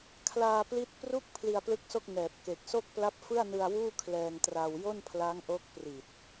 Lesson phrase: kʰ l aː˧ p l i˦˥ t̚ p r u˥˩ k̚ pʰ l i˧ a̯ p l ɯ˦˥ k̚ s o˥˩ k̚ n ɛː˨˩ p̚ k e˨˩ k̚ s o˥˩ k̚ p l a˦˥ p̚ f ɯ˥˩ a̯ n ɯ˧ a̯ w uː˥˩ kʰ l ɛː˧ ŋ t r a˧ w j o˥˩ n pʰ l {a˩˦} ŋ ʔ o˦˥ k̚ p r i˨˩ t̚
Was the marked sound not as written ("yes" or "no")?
yes